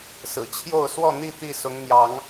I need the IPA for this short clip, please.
s ɹ̩˨˩ t͡ɕʰ j o˥˨ ʊ̯ s w ɔ˥˨ n̪ i˥˨ t̪ i˥˨ s ʊ˨˦ ŋ n̪ j ɑ˨˦ ŋ

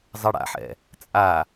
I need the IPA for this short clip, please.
zˤ ɛ ɽ a̰ ħ ɛ̰ | t͡sʼ a

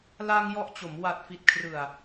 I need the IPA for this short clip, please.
l a˧ ŋ j ɔ˦˥ ʔ t͡ɕ o˩˦ m w a˨˩ t̚ f i˨˩ t̚ kʰ r ɯ˨˩ a̯

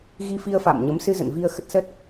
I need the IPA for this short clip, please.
ɣ i˧ f i˧ ə̯ f a̰ː˧˨ m ɲ ə˨˦ m s ɨ˧ z ə̰˧˨ n v i˧ ə̯ x ə˦˥ t̚ s ə˦˥ t̚

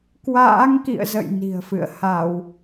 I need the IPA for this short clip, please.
k w a̰ː˧˥ ŋ k ḭ˧˨ ə̯ z ə̰˧˨ j n i̤˨˩ ə̯ f ɨ̰˧˨ ə̯ h a˧˩˨ w

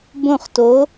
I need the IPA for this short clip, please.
b õ˥˧ χ t o˧˥

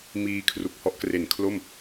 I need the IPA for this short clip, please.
m iː˧ kʰ r u˨˩ k̚ h ɔ˦˥ ʔ k r e˨˩ n kʰ l o˥˩ m

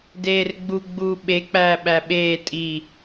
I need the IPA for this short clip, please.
d eː r ɡ͡b u ɡ͡b uː ɓ e k͡p æː ɓ æ ɓ eː tʼ i

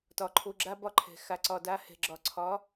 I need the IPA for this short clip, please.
t ɒ˨ ǃʰ o˧ ɡ͡ǁ a˦ b ɒ˦ ǃʰ ɛ̤˨ x a˨ ǀ ɒ˨ d a˧ h ɛ̤˨ ɡ͡ǁ ɒ˨ ǀʰ ɒ˨˦

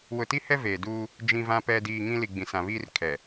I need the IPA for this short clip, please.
w ʊ˨ t i˦ h ɛ˦ v eː˨ d uː˦ | d͡ʒ ĩ˨ v ã˨ p ɛ˨ d iː˨ ŋ ĩ˦ l i˨ ɡ͡b ĩ˨ s ã˨ β iː˦ r kʰ ɛ˨

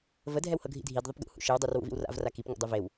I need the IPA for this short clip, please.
v ə dʱ ɛ w h ɤ ɡʱ ḭ dʱ i d ðˤ ʊ p ɡ ṵ h ṵ ʃ ɨ w dˤ u r w ṵ v ḭ w r a̰ v r a k i p ŋ ṵ dˤ u v e w

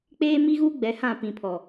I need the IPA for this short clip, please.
k͡p eː˦ m i˦ ɣ uː˦ ɡ͡b ɛ˨ h ã˦˨ p ĩ˨ pʰ ɔ˨

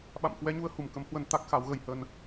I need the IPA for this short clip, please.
ɓ a̰˧˨ m k w ɛ˨˦ ɲ u˨˦ ə̯ h u˧˩ m k ə˨˦ m h w ə˧ n t̪ a˦˥ k̚ x a˨˦ w ɣ ə˧ j h ə˧ n

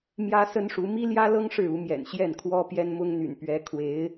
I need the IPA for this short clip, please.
m j ä˥ s ə˥ n ʂ u˧˥ m i˥ l j ä˥ l ɤ˥ ŋ ʂ ɻ̩˥˩ u˧˥ m j ɛ̰˨˩ n ɕ j ɛ˥˩ n kʰ w ɔ˥ p j ɛ˥ n m ʊ˥ ŋ n̪ y̰˨˩ n p ɥ ɛ˧˥ kʰ w e˧˥ ɪ̯

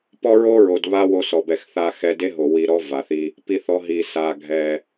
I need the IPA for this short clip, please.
p ɔ˦ ɹ o˦ ɹ o˨ d β a˦ w o˧ s ɔ˨ b ɛ˨ x θ a˧ x ɛ˧ d e˦ ɦ o˨ w i˧ ɾ ɔ˦ v a˨ θ i˧ | p i˦ θ ɔ˦ ɦ i˧ s a˧ ɡʱ ɛ˧

